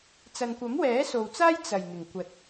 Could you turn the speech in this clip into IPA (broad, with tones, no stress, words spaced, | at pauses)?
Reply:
t͡sɐ˨nkʷɐ˨˥mwɛː˨˥so˨w t͡saː˥j t͡sɐ˨˩j n̪ɪ˨˩ŋkʷɐ˨˥t̚